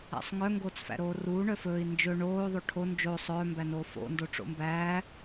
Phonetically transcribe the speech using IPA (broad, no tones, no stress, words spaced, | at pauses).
æ̰sˤŋœ ŋɡoːt͡sfæ̰ɾoːruː ɳœfɵːi̯ nd͡ʒɵ ɳoː ðˤoʈʰo nd͡ʒo sˤœː mbænoːfo̰ ndoʈ͡ʂo̰mbæː